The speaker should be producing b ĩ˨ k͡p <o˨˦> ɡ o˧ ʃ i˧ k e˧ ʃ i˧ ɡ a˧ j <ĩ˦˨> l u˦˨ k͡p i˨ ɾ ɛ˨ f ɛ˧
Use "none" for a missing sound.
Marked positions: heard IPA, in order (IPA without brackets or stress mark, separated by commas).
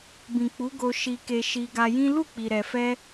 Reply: u˨˦, ĩ˦